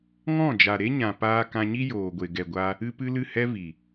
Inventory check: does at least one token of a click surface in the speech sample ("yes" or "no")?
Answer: no